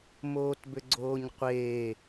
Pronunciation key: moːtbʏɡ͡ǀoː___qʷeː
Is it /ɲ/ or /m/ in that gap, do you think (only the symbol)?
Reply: ɲ